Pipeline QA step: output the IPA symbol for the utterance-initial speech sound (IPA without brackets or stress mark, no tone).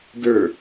d